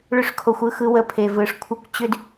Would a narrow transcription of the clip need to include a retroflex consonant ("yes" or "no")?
yes